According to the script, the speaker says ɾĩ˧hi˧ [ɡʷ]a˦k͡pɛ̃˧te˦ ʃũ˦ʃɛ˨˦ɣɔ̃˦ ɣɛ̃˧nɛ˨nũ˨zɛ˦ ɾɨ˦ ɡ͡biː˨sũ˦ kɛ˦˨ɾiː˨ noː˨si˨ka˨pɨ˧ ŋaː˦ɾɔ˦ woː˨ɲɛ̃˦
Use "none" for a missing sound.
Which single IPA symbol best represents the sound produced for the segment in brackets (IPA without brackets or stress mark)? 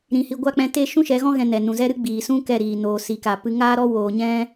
ɡʷ